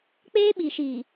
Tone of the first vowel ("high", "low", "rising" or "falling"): high